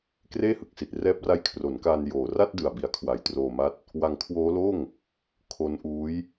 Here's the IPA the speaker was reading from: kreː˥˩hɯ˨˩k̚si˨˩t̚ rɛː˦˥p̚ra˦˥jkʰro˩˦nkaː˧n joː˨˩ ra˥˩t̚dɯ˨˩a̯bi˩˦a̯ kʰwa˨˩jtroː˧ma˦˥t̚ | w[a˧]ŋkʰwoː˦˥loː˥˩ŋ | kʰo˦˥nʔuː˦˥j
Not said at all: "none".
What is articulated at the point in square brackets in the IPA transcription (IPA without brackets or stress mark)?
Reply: a˧